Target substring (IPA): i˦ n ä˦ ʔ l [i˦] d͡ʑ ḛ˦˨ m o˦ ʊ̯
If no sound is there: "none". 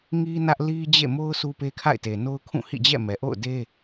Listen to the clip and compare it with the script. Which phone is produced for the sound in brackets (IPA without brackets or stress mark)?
i˦